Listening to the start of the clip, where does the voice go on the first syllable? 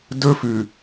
high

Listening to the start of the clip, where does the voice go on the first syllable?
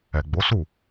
low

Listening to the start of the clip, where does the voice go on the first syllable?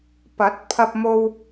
rising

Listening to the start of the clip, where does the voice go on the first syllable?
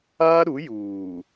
high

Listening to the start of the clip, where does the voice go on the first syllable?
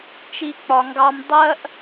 high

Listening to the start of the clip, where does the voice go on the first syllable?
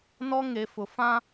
high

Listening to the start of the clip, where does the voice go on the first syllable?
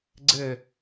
falling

